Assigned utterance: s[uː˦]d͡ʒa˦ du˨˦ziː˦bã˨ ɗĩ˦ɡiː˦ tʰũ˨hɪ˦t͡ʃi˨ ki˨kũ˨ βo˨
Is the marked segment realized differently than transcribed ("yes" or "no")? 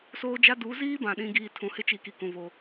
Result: yes